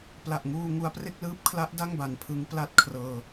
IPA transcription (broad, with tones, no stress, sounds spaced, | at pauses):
p l a˨˩ ʔ ŋ uː˧ ŋ u˧ a̯ p r e˥˩ k̚ l ɯː˦˥ p̚ kʰ l a˦˥ ʔ d a˥˩ ŋ b a˨˩ n pʰ ɯ˦˥ ŋ p l a˥˩ t̚ kʰ r ɤː˧